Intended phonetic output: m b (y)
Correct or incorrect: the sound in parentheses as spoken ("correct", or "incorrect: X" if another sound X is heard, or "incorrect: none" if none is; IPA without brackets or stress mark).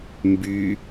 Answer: correct